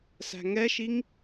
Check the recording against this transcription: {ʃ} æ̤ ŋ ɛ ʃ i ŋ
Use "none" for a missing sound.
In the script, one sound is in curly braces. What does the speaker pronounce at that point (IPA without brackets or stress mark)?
s